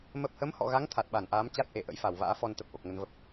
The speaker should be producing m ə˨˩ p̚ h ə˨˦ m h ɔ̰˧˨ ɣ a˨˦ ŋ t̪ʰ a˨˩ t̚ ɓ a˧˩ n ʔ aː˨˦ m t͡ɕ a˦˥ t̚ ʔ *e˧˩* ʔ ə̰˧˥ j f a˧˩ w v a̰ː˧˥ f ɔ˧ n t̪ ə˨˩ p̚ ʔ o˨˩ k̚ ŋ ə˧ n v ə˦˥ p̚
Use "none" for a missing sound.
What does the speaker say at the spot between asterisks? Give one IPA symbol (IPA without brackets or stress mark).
e˧˩